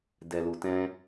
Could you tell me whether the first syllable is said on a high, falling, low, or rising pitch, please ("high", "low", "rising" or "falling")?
low